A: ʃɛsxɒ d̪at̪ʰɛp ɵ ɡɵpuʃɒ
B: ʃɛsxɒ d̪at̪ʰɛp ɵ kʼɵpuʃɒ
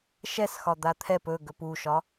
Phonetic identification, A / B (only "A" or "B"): A